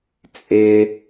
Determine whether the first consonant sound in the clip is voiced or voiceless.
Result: voiceless